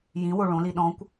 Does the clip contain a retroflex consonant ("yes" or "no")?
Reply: yes